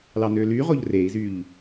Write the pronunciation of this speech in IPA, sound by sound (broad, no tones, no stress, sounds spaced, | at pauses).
l ɑ n ø l y ʁ o ʎ r e i̯ z y ʎ